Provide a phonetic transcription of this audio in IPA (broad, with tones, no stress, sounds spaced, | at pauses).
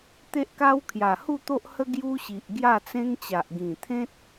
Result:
t̪ e˦ ʔ k a˦ w kʰ j a˨˩ h u˥˧ t̪ o˦ ʔ h ə˦ ɡ j u˦ ɕ i˨ ʔ ɡ j a˥˧ t͡s ẽ˦ ŋ t͡ɕ a˨ ʔ ɡ ĩ˨˩ t̪ʰ ẽ˦ t̚